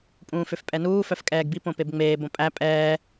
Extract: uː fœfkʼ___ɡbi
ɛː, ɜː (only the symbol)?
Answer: ɛː